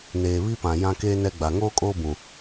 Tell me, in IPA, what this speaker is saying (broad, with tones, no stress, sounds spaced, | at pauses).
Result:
n eː˨ β i˦ p ã˨ j ã˦ k eː˦ n ɛ˦ ɡ͡b a˨ ŋ oː˦ kʼ oː˦ b ũ˨